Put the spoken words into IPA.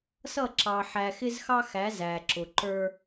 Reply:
s ʌ˦˨ ǁ ɑ˨ ħ æ˨ x ɪ˦ z x ɑ˦ x æ˨˦ z æ˨ ǁ ʊ˨ ǃ ə˞˦

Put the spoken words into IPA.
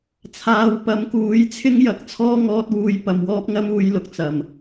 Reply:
t͡sʰ aː˨ w p ɐ˨˥ m k uː˨˥ j t͡sʰ ɪ˥ ŋ j ɐ˨ k̚ t͡sʰ ɔː˥ ŋ ɔː˧ t̚ w uː˧ j p ɐ˨ m w ɔː˥ p̚ ŋ ɐ˥ m uː˨˧ j l ʊ˨ k̚ t͡s ɐ˨˩ m

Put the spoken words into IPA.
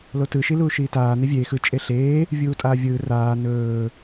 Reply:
l o t ɯ ʃ i l uː ʃ iː t aː n e vʲ eː x ɯ t͡ʃʼ e ɬ eː | vʲ uː tʼ aː vʲ ɯː r aː n ɵː

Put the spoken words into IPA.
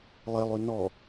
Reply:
lˠ e lˠ ʉ n ɔ

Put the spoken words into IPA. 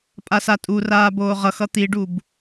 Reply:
pʼ a s a tʼ u r aː b oː ʁ ʌ x ʌ t̪ i ɖ u b

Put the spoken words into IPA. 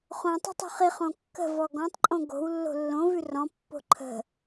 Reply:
χ õ tˤ ə̤ tˤ ṳ χ i χ õ kː ə̤ v ɔ ɡ ɔ̃ tˤ ǃʼ õ ɡ o̤ w lː o̤ lː õ v ʉ r ɔ̃ pː o̤ ǃʰ ə̤

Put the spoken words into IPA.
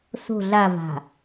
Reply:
s o̤ ɮ a v a̤

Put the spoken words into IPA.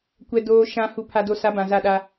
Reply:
kʷ ɛ˨ d oː˨ ʃ ã˨ h u˨ pʰ a˨ d o˨ s a˨˦ b ã˨ z a˦˨ ɗ a˦

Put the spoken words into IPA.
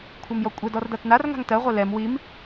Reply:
kʷʰ ɜ m j ɔ kʷʼ ɛ d ɔ r d a t n a r ŋ a̤ ŋ t ɜ ʁʷ ɛ l ɛ m w i m

